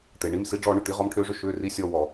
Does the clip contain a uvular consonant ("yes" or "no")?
yes